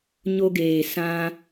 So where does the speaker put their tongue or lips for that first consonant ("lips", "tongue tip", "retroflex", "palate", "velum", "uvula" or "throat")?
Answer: palate